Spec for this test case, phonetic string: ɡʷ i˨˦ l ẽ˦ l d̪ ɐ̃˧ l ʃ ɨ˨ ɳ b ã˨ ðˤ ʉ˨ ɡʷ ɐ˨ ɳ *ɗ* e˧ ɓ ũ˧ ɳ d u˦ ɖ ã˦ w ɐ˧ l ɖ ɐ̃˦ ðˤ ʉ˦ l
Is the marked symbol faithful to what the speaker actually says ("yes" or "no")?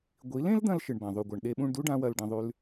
yes